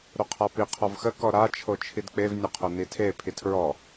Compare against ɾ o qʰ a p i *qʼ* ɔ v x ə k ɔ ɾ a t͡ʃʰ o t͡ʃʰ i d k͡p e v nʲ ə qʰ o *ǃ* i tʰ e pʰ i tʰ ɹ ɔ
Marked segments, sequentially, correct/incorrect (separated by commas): incorrect, incorrect